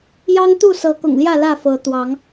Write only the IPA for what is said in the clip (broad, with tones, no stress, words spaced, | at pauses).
jɑ˦ŋ t̪u˥˨sɤ˨˦kʊ̰˨˩ŋljä˥˨ lä˥˨fɤ˨˦ t̪wɑ˨˦ŋ